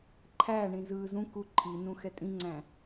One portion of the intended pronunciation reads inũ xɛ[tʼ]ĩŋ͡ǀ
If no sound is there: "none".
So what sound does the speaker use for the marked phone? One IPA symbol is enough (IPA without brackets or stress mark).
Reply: tʼ